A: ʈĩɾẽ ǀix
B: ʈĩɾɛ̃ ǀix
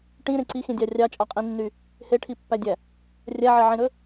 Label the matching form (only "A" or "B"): A